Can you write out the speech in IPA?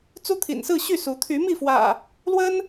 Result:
t͡s u˦ t̪ʰ ḭ˨˩ n s ɹ̩˥˨ ɕ y˥˨ s u˨˦ t̪ʰ y˨˦ m i˥˨ f w ä̰˨˩ | l w ə˦ n

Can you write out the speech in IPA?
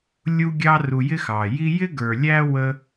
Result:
lʲ u˦ ɡʲ ɑ˦ r u˨ j ɪ˥ x ɑ˩ j i˦ j ɪ˥ ɡ ə˞˨ lʲ æ˥ w ə˦

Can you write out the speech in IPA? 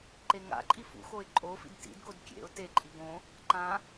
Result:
ǃ e ŋ a̰ ǃʼ i f ṵ x o ɪ̯ ǃʼ o f ḭ d t ḭ d ɡ o d kʲ ḛ ʊ̯ t e ǃʼ i ɡ õ | ǃ ã

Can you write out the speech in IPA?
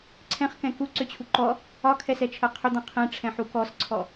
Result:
ǀʰ ɛ̃ χ k ɛ̃ k u ǀ ʏ t͡ɕʰ u ǃ ɔ | ɒ kʰ ɛ s ɛ t͡ʃʰ ɜ qʰ ʏ d̪ ɔ̃ qʰ ɛ̃ ʈ͡ʂʰ ɛ̃ ħ u k ɔ s ǀʰ ɔ

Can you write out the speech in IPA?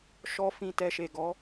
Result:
ʃ ɔ˦ f ĩ˦˨ t ɛ˧ ʃ e˨ ɡ ɔ˨˦

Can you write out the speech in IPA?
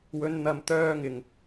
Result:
w ɵ˨˧ n n̪ ɐ˨ m t̪ œː˧ ŋ ɪ˨˩ ŋ

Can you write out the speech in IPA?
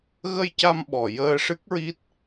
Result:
ɣ ə˧ j c a˧ m ɓ ɔ˨˩˨ j əː˧ ʂ ɨ˦˥ k̚ ɹ i˦˥ t̚

